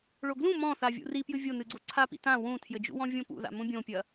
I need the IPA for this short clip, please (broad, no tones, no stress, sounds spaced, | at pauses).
ɭ o ɡ l ũ m ɔ̃ θ a vʲ ṵ r i p j ɨ vʲ o n ɨ ɡ͡ǀ o ǀʰ a p ḭ t ã w ũ tʰ j ɘ d͡ʒ ṵ w ɔ̃ vʲ õ p ṵ ð a̰ m ũ bʲ õ pʲ ɐ